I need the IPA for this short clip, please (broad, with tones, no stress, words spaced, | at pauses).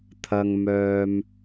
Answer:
t̪ʰɐ˥ŋmœː˥m